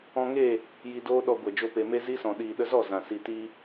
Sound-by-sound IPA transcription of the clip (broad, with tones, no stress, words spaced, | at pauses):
ɔ̃˧ŋe˦˨ | ji˧doː˦ɗɔ˧ɡʷɛ˨ d͡ʒo˧pe˨me˦ zi˦sɔ̃˨ ɗiː˨ɗə˧zɔ˦˨ zã˨ si˨ti˧